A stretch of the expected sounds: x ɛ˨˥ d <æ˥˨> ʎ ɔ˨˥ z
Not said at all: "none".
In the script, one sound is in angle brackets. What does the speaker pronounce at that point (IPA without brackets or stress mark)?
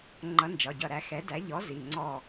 æ˨˥